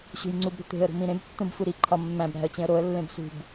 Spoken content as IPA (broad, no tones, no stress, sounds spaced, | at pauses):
ɕ ṳ j ŋ͡ǀ u b ɾ ṳ t̪ e̤ ə̯ ɾ ṳ m ĩ ɾ ẽ b tː ũ b f u ɾ i ǃʰ ɒ mː æ̃ b ɾ æ̤ ə̯ t͡ɕ ẽ ə̯ ɾ o ə̯ lː ẽ b s ṳ b